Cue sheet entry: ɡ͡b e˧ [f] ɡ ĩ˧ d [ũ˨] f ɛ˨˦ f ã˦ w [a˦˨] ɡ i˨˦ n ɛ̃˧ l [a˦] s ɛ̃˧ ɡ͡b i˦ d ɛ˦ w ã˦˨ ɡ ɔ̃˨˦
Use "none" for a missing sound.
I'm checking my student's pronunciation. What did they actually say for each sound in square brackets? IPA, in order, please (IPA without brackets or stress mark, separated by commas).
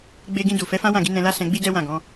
none, u˨, ã˦˨, a˦